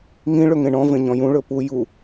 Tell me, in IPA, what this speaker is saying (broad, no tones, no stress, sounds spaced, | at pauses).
ŋ ĩ ɭ ɵ ŋ ẽ ɳ ɔ̃ v ẽ ɲ ɔ̃ j ũ ɭ ɵ p u j u